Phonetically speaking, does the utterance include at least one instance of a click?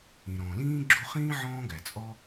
yes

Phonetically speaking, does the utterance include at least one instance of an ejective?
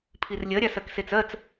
no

